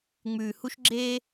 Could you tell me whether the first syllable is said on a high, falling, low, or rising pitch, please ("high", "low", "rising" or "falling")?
low